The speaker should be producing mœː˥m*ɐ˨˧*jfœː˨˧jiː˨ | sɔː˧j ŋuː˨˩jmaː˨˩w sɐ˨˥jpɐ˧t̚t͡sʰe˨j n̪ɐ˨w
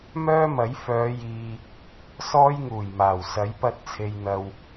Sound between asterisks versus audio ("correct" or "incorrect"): incorrect